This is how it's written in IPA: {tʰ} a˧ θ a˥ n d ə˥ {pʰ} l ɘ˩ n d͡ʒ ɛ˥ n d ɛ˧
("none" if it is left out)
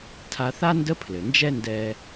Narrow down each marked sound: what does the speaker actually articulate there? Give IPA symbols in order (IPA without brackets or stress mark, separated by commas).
tʰ, pʰ